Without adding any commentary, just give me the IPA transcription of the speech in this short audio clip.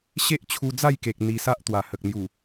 ɕe˦ʔt͡ɕʰu˧d͡za˥˧jke˨k̚ n̪i˧sa˦ʔ t̪wa˨˩hə˨k̚n̪ju˨˩

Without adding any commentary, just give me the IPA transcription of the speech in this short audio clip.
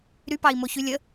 ɾypɑi̯moçy lʲə

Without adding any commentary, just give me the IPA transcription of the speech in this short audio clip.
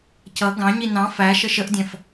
cʌ ɡɑ̃ɲi nɑ̃ fæ ʃəʃəʔdʲæ̃f

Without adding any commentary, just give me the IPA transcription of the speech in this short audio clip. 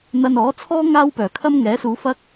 n̪ɐ˧nɔː˨˥t͡sʰɔː˥ ŋaː˥wpœː˨˩kʰɐ˥m ŋɛː˨˥suː˨˧ fɐ˥k̚

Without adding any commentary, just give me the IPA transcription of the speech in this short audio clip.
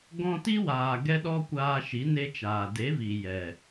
ɡɔ̃˧ti˦waː˨ ɡɛ˦ɗɔ˦kʷaː˧ʃi˨˦ ne˦t͡ʃaː˨ de˨˦vi˨ jɛ˨

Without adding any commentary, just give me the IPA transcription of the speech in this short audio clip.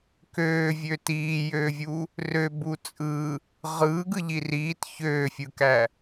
køːvʲø tiːjøːvʲu | røbu t͡sʼɯ | ʁɯːɡɯʎi riːt çøːfʲɯkæ

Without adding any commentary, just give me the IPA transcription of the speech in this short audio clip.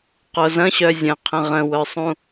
qozɐ̃ ɕœzʲə̃qʰə̃ ʁə̃wœsˤũ

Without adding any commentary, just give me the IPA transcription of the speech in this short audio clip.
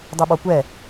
dˤiɓɔkʷɛ

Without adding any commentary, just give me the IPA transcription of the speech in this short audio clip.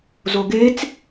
zoɡet͡s

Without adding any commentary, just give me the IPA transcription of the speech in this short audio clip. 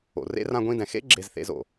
o̰˨rḛ˦ rã˧ɡʷĩ˧dɛ̃˨xḛ˦ ɡ͡ǁe˧zθḛ˧z o̰˨

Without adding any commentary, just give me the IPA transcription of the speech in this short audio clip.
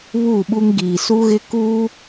βuː˦˨ɓu˦ŋ ɡiː˨su˦ɣɪ˦ ku˦

